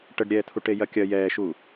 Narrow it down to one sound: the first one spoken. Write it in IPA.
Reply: ʈ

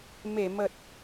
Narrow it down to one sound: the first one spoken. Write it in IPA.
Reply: m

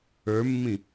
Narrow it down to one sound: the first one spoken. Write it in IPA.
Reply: ə˞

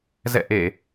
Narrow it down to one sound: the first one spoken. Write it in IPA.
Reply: z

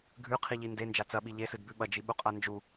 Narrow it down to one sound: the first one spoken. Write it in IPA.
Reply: ɡʱ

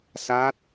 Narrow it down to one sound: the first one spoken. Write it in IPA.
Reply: s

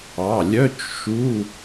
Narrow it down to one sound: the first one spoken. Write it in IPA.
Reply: ɑ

